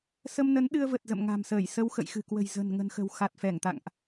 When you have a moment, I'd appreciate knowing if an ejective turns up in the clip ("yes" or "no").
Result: no